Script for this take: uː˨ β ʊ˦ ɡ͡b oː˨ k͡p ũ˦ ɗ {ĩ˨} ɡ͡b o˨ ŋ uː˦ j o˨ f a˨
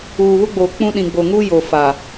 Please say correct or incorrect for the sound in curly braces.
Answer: correct